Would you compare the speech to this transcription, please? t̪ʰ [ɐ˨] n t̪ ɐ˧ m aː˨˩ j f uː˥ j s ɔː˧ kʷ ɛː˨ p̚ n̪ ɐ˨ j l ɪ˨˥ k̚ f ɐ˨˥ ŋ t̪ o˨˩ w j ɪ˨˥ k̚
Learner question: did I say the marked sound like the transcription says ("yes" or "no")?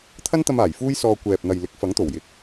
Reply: no